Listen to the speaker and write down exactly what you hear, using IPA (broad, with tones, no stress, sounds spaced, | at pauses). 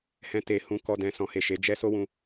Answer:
h ɛ̃˨ t e˨ h ũ˨˦ k ɔ˧ d ɛ̃˨ s ɔ̃˨ h e˨ ʃ e˨˦ d͡ʒ ɛ˦ s o˦ w ũ˧